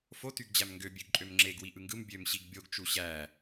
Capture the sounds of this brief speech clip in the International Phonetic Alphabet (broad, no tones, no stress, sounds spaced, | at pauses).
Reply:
f o t y ɡ d͡ʑ æ m ŋ ɡ ø bʲ ø ɡ ǃʼ ø m ŋ͡ǁ e ɡ w i ʔ ɯ ŋ ɡ ɯ m bʲ ø m ɕ i ɡ bʲ o ɡ t͡ʃ u ɕ æ